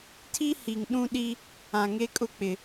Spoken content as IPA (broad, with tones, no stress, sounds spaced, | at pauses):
tʰ i˦ h i˨ ŋ ɗ ũ˦ ɗ i˦ | ã˨ ŋ e˦ kʼ ʊ˦ k͡p ɪ˨